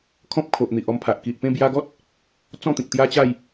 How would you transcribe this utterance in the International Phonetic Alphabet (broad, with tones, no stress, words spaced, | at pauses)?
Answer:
kʰɔ̃˦p̚kʰo˨ʔn̪i˨ʔ ɔ˧mpʰa˨ʔki˨ʔpẽ˥˧ bja˧ɡɔ˦t̚ | t͡sɔ̃˥˧t̪ĩ˨k̚t̪ja˦t͡ɕa˥˧j